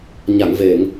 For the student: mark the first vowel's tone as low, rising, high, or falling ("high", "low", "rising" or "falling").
low